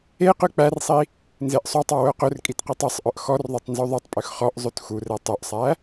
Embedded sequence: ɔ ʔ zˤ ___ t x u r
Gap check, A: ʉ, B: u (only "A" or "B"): A